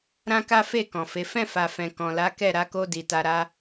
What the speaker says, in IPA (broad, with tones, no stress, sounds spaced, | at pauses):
ɾ ã˦ k a˦ f e˦˨ k ɔ̃˨ f e˨˦ f ɛ̃˦˨ f a˨ f ɛ̃˨ k ɔ̃˨ l a˨˦ k ɛ˦˨ ɾ a˨˦ k o˧ d i˨ t a˧ ɾ a˦